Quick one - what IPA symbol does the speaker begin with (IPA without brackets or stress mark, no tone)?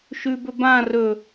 ʃ